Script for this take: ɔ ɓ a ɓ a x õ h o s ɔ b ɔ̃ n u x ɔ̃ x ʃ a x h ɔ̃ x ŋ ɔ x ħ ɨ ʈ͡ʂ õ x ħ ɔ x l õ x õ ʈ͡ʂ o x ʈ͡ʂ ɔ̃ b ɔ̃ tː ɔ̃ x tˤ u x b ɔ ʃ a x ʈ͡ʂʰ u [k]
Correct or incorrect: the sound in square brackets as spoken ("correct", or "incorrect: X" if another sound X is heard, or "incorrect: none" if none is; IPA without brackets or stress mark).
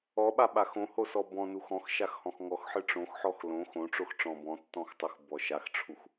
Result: incorrect: x